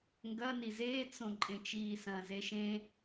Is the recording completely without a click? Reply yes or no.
no